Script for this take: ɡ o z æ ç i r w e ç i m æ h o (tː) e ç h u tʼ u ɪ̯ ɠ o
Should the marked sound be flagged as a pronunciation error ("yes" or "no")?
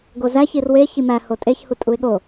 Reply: yes